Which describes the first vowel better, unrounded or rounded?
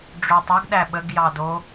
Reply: rounded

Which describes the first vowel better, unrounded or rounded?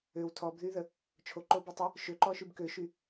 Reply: rounded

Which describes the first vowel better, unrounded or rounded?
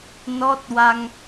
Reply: rounded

